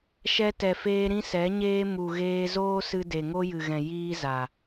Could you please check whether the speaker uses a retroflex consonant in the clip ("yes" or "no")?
no